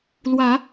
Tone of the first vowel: rising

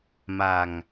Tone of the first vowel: low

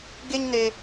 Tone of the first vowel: high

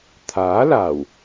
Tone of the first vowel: rising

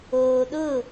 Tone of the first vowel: low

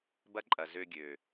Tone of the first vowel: high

